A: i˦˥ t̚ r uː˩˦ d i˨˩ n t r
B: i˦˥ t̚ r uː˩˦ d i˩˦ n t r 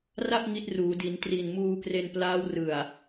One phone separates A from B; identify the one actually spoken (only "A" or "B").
B